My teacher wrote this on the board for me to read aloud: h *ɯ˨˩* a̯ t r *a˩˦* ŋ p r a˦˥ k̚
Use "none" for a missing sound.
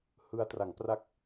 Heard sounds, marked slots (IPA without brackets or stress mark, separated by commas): ɯ˧, a˩˦